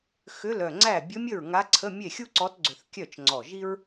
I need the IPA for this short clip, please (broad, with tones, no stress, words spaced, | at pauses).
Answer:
xʏ˧˥˧lœ˧˩ŋ͡ǀæ˥˩ bʲɵ˧˥mʲə˥˩ɹ ŋa˧˥ǀʰə˧˥˧ mʲe˥˩xʲu˥ǀɔ˧˥tɡ͡ǀʏ˧˩θ kʲœ˥˩t͡ʃŋ͡ǀɔ˧˩ʒi˥ɹ